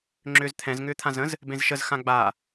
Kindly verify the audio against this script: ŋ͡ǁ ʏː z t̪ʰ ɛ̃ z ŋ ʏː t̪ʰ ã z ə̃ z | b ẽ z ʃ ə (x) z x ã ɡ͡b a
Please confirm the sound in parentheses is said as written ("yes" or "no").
no